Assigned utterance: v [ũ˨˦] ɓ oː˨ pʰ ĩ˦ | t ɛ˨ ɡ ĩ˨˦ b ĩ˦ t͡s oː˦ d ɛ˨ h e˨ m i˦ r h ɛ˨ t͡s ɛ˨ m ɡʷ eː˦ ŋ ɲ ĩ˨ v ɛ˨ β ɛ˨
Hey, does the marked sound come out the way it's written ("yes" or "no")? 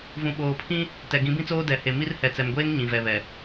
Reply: no